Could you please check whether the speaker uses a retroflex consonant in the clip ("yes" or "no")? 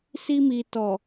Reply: no